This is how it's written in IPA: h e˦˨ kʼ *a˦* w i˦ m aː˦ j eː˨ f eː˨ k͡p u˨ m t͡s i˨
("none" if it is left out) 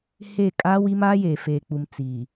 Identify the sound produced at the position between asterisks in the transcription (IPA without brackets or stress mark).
a˦